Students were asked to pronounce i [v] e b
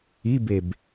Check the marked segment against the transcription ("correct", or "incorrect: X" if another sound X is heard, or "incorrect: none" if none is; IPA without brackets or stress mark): incorrect: b